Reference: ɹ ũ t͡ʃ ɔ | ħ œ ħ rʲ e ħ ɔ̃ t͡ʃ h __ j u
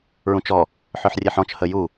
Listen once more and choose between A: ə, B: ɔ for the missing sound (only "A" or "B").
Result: A